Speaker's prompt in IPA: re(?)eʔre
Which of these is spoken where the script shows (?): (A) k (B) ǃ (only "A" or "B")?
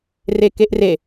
A